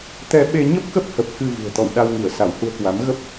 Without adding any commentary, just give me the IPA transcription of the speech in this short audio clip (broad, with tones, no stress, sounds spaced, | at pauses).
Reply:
t̪ ɛ˧ ɓ e˧ ɲ ə˦˥ p̚ k ə˦˥ p̚ h ə˨˩ p̚ k ɨ˧ v ṳ˨˩ ə̯ t̪ ɔ̰˧˨ w ɗ a˧ w ŋ i˧˩ ə̯ s a˧˩ w h u˧ ə̯ k w a˨˦ m ɣ ə˦˥ p̚